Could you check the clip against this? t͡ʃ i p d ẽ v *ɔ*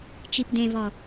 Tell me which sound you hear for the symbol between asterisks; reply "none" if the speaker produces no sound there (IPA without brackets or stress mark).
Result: ɔ